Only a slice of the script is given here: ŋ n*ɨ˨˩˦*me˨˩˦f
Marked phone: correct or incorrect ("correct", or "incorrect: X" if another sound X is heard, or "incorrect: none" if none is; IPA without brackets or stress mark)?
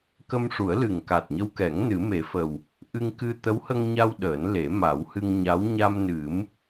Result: correct